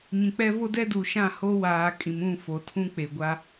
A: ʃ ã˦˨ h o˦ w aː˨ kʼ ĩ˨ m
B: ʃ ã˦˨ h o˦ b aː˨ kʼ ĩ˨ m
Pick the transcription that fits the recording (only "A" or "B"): A